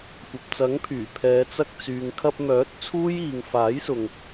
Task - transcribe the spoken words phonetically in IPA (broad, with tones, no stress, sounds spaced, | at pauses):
kʷ ɐ˨ p̚ t͡s ɐ˨˥ ŋ pʰ yː˨˩ pʰ ɛː˨˧ t͡s ɐ˧ k̚ t͡s yː˨ ŋ kʰ ɐ˧ p̚ m œː˨˥ t̚ t͡sʰ uː˥ j iː˨˧ ŋ f aː˨˥ j s ʊ˨ ŋ